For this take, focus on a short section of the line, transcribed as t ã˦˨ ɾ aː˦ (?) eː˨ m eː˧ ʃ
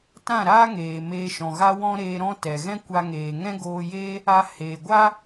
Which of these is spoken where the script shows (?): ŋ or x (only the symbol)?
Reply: ŋ